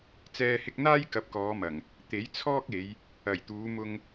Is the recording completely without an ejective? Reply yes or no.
yes